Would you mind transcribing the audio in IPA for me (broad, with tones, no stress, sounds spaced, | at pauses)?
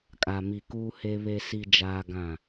kʼ a˨ m i˨ k uː˦ h e˦ β e˦ s i˦ d͡ʒ aː˦ ɡ ã˦˨